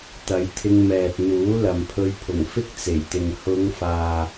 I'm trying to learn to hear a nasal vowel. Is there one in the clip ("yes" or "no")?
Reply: no